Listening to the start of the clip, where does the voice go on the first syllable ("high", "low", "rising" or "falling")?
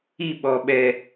falling